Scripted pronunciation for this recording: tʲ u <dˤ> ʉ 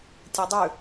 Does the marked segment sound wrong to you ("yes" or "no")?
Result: no